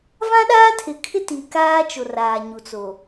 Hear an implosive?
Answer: yes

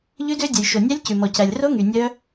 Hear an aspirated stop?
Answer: no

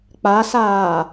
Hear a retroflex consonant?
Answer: no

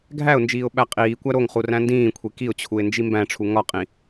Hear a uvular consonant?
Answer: yes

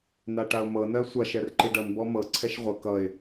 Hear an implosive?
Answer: no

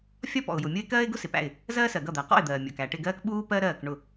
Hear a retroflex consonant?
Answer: yes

